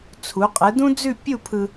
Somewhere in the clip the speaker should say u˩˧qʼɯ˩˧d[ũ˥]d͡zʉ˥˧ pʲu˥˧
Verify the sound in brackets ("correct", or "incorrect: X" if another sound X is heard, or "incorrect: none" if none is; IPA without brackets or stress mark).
correct